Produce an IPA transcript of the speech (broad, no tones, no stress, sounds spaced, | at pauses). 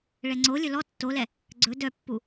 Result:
ɭ ɛ ŋ͡ǀ o lʲ ɵ l ɔ tː o l ɛ | ɡ͡ǀ ɵ d œ pː u